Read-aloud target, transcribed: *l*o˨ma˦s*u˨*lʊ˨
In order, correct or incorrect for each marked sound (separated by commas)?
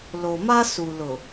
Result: correct, correct